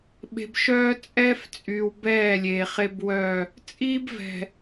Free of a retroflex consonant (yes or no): yes